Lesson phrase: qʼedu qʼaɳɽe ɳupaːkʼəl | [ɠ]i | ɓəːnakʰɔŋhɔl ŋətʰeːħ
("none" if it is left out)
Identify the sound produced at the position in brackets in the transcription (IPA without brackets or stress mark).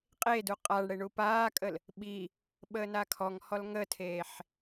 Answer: ɓ